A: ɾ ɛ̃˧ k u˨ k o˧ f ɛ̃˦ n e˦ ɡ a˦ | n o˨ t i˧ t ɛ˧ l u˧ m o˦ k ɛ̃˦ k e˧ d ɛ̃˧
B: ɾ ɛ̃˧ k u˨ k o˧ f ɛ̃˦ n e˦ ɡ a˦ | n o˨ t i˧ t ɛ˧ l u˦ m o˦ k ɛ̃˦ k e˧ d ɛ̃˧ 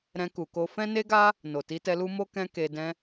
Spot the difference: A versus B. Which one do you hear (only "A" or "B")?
B